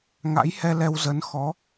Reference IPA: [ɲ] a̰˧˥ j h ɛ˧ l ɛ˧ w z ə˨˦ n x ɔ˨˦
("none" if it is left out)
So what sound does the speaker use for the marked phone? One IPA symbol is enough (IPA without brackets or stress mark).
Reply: ŋ